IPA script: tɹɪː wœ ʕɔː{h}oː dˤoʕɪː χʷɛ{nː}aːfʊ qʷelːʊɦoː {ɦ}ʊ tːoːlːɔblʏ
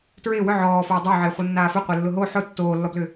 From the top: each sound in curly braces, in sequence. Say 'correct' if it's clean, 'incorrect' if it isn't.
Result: incorrect: f, correct, incorrect: ħ

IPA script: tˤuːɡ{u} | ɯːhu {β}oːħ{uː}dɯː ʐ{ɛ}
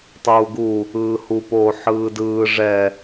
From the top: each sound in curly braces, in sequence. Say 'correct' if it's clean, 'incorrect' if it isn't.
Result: correct, incorrect: p, incorrect: ɯː, correct

